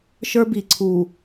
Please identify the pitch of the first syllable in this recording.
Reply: high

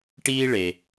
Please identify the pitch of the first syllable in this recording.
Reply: high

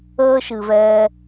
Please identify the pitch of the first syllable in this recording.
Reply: high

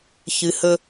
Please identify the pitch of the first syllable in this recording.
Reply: low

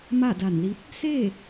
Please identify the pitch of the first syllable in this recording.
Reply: falling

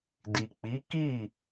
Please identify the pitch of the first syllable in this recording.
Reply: low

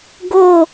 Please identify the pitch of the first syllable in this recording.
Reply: falling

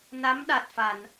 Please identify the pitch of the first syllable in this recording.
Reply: rising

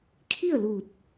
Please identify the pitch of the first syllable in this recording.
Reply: falling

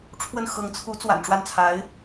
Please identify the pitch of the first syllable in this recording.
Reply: falling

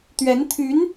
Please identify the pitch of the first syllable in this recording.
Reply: rising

